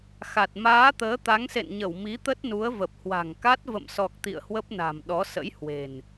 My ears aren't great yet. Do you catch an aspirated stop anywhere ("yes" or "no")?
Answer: no